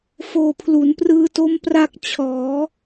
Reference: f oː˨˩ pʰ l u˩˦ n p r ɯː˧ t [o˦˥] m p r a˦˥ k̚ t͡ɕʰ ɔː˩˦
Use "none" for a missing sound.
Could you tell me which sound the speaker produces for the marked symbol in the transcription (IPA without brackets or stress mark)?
o˦˥